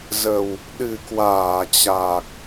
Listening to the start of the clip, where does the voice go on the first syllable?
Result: low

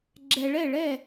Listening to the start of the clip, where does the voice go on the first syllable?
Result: low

